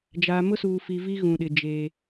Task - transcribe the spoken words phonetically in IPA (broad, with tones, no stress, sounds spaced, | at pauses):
d͡ʒ aː˨ m ʊ˦ s uː˨ f i˨ v i˦ ɣ ũ˨ ɗ ɪ˨ d͡ʒ eː˨